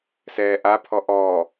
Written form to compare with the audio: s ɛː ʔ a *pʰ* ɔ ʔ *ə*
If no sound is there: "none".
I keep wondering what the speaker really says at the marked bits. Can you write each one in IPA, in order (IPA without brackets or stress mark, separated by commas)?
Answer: pʰ, ɔ